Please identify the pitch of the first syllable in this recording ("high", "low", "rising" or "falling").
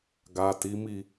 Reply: low